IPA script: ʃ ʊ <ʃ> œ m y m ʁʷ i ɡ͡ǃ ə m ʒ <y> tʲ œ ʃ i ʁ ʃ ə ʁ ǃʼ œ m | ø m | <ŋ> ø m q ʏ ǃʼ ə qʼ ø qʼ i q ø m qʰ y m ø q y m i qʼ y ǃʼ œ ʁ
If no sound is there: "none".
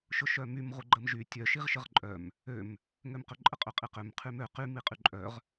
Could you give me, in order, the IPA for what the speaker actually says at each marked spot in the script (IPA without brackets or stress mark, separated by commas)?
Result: ʃ, y, ŋ